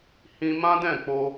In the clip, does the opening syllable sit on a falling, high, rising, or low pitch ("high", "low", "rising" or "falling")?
high